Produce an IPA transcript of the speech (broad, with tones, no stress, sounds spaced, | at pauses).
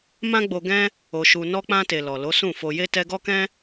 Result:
m ã˦ ɡ͡b o˧ ɡ ɛ̃˦ | o˧ ʃ u˧ n ɔ˧ k͡p ã˧ t e˨ l ɔ˨ l o˨˦ s ũ˦˨ f o˧ j e˦ t ɛ˧ ɡ ɔ˦ k ɛ̃˦